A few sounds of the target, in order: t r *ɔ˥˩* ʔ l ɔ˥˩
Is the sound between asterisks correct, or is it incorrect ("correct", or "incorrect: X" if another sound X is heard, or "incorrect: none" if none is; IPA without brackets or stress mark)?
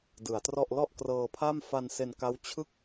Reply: correct